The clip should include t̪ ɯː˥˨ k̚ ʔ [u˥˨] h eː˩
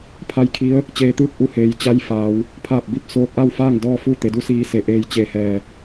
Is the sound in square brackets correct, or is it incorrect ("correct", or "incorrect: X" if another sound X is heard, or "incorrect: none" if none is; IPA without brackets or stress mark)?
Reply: incorrect: u˧